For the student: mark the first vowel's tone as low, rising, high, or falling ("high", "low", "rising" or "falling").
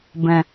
low